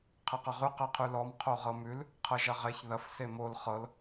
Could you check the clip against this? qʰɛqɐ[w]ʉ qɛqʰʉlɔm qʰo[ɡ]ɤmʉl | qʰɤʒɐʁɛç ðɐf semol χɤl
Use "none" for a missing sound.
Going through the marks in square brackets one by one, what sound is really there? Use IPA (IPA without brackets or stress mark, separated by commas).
ʁ, ʁ